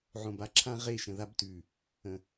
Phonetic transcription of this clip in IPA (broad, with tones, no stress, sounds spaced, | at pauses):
ʕ õ˨ b a˦ ǁʰ ã˦ ʁ e˦˨ ʃ ə̃˨ ð a˦ b t ʉ˨ | ə̃˨